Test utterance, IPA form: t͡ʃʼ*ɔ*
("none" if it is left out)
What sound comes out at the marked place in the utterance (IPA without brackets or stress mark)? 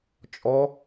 ɔ